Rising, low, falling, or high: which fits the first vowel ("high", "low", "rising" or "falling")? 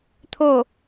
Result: falling